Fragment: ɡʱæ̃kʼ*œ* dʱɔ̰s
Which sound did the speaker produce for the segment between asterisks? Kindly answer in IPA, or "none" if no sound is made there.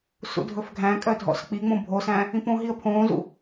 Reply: œ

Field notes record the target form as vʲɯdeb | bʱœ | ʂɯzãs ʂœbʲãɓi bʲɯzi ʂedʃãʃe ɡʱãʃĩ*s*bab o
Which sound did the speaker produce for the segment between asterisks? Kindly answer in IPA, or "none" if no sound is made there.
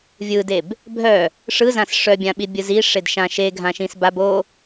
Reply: s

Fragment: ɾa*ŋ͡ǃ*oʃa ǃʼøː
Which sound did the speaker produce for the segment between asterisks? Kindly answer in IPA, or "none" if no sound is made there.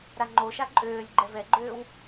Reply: ŋ͡ǃ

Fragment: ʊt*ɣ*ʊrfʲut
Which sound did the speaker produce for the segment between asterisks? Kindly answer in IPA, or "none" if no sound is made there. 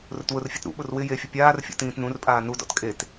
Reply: w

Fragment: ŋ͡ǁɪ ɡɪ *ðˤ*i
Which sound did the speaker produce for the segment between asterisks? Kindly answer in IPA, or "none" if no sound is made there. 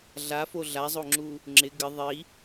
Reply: ðˤ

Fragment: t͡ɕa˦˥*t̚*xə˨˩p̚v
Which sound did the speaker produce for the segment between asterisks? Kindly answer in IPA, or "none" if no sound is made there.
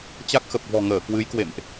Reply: k̚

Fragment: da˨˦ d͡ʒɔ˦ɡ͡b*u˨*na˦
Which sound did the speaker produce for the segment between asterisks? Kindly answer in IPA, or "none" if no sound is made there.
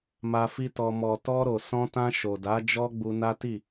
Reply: u˧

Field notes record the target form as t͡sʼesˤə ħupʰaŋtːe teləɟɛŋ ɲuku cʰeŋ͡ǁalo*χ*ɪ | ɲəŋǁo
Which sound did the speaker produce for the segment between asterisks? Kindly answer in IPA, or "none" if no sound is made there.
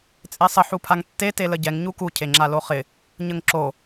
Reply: χ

